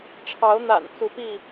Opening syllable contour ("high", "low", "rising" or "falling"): rising